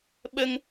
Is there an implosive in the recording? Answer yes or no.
yes